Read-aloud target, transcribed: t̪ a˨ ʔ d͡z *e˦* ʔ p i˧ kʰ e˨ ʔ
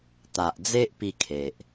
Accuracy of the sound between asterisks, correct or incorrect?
correct